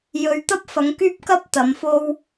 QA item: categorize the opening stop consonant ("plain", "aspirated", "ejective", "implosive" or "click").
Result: plain